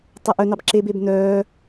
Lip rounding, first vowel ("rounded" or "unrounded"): unrounded